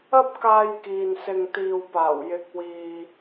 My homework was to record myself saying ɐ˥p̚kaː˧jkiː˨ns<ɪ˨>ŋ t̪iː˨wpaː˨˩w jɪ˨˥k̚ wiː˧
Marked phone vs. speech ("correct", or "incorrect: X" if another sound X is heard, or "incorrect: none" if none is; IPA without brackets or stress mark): correct